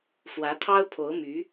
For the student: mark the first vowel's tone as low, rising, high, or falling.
rising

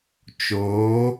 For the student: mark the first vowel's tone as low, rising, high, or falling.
rising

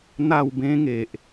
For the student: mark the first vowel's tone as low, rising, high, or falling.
falling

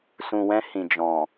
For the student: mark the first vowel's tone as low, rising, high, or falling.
low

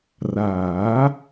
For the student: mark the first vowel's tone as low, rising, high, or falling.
rising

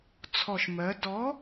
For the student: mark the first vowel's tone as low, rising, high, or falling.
low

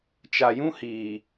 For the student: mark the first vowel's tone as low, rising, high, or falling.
low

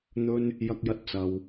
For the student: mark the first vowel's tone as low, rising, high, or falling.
high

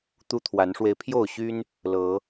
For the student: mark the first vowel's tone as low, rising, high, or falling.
high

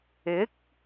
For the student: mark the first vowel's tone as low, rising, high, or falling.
rising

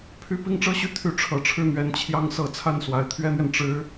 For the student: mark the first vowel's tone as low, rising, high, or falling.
falling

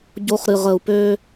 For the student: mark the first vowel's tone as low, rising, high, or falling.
high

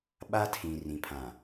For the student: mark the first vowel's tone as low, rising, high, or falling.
high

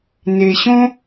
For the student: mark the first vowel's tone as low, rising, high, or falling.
low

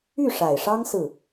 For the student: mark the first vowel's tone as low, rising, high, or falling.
falling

